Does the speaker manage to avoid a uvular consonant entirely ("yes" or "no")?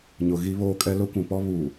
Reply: yes